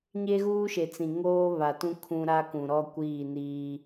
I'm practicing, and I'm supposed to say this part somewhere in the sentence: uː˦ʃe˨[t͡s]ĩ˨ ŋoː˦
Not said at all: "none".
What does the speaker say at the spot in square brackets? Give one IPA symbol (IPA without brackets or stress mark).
t͡s